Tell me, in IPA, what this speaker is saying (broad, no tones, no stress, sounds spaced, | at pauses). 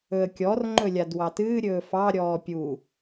ɵ ə̯ kʲ ɔ r ŋ͡ǃ ɵ lʲ a d w ɑ t ɨː ɾʲ ɵː f ɑ ɾʲ ɔː pʲ u